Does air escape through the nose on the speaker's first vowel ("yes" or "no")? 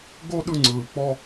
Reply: no